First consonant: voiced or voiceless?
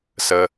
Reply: voiceless